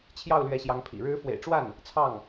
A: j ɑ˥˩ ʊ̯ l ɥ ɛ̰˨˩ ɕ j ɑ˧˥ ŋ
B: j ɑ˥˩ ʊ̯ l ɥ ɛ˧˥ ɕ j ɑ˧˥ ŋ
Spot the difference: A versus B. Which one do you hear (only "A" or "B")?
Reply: B